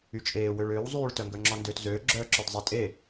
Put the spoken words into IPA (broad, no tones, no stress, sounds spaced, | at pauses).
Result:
y t͡ʃʼ eː w ø ɭ øː w zˤ yː ɭ t œ ŋ ɡ œ ŋ͡ǁ ɔ n d ø t z øː ɡ͡ǁ œː ǁ œ d zˤ ɛ tʼ e